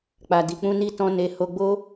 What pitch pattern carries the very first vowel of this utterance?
low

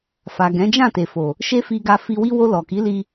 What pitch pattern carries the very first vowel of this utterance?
low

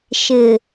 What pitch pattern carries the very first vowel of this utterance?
low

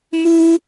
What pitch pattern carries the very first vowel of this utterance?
high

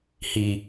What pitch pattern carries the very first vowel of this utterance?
low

